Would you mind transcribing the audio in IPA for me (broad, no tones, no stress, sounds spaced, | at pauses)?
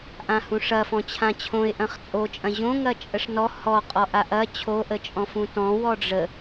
ʔ ã h ũ ʂ ɐ f ɔ̃ t͡ɕʰ ã t͡ɕʰ õ ɪ̯ ʔ ɐ̃ χ t͡sʼ o t͡ʃʼ ɐ̃ ʑ õ ŋ ɐ t͡ʃʼ ə ʂ n ɔ h ɔ qʼ ɔ ʔ a ʔ ɐ t͡ɕʰ o ʔ ə t͡ʃʼ ɔ̃ f ũ t ɔ̃ w ɔ ɖ͡ʐ ə